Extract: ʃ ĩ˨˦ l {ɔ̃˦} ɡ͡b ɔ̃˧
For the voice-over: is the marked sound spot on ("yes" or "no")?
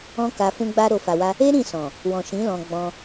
no